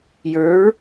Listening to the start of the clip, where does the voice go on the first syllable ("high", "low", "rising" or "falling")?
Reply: rising